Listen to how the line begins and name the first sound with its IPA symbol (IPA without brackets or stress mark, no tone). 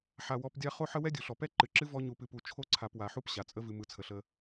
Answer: ħ